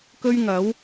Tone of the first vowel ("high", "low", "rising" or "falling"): high